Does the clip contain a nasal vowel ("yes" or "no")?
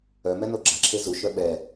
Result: no